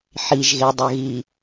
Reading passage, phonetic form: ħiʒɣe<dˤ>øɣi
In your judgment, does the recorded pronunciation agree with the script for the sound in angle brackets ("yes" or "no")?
yes